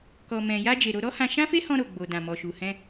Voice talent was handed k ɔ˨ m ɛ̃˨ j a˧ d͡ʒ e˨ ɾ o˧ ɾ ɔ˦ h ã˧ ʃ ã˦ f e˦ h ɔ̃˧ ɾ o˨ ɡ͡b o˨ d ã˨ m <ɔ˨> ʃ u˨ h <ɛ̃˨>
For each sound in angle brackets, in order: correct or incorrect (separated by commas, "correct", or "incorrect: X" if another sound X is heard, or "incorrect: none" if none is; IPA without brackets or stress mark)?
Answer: correct, incorrect: ɛ̃˧